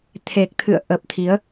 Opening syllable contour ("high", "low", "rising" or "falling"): low